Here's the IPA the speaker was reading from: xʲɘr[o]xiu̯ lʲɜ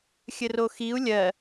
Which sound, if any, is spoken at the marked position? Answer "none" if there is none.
o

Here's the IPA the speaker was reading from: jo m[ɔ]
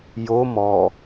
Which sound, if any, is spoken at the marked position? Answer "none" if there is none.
ɔ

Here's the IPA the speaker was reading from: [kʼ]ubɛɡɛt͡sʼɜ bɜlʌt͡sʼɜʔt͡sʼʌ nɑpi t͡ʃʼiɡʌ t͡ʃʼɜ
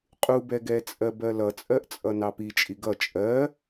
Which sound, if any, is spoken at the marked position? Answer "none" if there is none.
qʼ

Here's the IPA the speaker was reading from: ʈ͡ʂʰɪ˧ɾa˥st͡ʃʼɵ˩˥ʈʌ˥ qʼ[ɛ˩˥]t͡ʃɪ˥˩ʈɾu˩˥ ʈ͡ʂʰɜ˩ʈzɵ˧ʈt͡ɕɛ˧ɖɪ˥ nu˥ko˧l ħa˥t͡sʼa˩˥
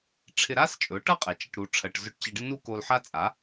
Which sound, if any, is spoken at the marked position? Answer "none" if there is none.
ɛ˩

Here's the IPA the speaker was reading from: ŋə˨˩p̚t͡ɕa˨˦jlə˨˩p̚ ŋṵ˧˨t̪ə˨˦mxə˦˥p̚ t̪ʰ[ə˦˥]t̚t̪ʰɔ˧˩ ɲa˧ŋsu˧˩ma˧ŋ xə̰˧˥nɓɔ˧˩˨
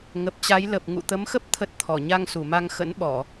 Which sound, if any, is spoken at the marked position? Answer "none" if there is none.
ə˦˥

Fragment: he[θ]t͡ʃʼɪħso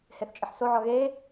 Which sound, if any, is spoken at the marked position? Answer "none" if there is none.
θ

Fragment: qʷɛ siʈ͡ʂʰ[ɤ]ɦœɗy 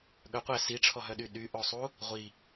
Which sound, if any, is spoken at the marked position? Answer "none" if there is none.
ɔ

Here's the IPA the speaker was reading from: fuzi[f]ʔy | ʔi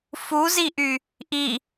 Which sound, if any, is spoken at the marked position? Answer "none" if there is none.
none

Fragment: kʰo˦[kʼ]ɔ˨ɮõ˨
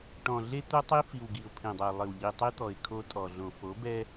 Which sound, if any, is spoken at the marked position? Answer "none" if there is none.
tʼ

